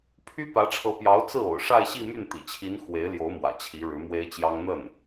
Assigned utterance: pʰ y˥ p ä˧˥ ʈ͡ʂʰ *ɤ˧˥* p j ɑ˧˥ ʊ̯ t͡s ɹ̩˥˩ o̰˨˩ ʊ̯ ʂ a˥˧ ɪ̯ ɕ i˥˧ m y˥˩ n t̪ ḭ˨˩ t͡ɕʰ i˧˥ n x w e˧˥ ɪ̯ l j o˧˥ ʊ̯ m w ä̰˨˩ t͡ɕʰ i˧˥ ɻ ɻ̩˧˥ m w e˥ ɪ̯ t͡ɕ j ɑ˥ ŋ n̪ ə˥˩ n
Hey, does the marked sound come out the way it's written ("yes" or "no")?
yes